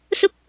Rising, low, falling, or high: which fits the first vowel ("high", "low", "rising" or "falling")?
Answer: high